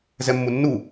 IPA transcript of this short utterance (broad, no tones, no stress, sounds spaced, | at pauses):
z ɛ mː u nː u